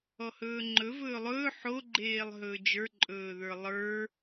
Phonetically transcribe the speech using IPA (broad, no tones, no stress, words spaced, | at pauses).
ɔhɵːŋ͡ǃɵ vɵːlˠɵː ħo ɡ͡ǃeːlˠɦɵːd͡ʒə˞ ǃʼɵːðə˞lˠə˞